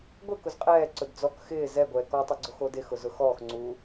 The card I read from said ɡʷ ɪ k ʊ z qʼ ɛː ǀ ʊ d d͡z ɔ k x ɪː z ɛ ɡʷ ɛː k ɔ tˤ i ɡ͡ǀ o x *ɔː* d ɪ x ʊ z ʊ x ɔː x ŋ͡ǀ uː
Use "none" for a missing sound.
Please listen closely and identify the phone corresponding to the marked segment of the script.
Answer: oː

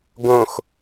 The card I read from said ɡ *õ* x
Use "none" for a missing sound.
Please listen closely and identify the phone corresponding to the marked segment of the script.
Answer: õ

